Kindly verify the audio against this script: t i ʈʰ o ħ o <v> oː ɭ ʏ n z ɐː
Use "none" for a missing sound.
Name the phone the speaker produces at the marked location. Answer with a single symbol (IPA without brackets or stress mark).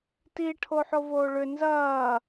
v